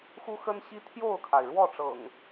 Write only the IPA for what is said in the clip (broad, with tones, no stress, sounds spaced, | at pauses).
x u˦ x ə˦ n ɕ i˦ t̪ʰ j o˥˨ ʊ̯ kʰ a˩ ɪ̯ ɻ w ɔ˥˨ ʈ͡ʂ ɤ̰˨˩ ŋ